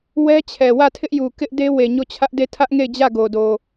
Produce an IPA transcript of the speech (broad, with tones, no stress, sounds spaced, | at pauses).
w ɛ˦ t͡ɕʰ ɛ˨ w ä˦˨ tʰ ɪ˦ ʔ j u˨ k ɪ˦ ʔ d e˦ w e˨ ɲ o˦˨ t͡ɕʰ ä˦ ʔ d e˦˨ tʰ ä˦ ʔ ŋ e˦˨ ɪ̯ d͡ʑ ä˦˨ ɡ o˨ d o˨